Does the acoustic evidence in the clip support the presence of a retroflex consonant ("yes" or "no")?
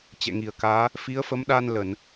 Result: no